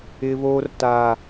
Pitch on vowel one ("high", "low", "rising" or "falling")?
high